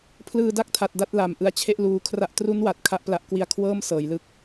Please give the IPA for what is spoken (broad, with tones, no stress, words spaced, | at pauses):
pʰlɯː˧da˥˩k̚tʰa˨˩t̚ da˥˩t̚la˨˩m ʔɯ˧a̯t͡ɕʰe˥˩ʔ luː˧kʰra˥˩ʔ tru˦˥nwa˨˩t̚ kʰa˥˩ʔpla˦˥ʔ kwi˧a̯kʰwɤː˥˩m sɤː˩˦jlɯ˥˩k̚